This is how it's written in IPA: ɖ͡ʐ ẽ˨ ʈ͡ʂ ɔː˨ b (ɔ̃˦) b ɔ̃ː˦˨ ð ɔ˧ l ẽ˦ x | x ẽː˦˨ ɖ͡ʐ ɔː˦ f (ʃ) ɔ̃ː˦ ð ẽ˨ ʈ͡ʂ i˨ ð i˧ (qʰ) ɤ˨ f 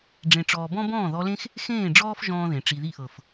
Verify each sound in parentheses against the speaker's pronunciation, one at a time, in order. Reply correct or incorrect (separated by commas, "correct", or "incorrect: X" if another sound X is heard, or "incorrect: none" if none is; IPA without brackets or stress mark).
correct, incorrect: ʒ, incorrect: ʔ